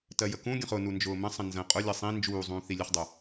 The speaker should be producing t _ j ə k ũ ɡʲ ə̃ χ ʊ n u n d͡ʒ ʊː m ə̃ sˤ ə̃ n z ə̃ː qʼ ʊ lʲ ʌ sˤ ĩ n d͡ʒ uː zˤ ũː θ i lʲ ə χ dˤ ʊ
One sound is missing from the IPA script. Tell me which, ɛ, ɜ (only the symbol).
ɜ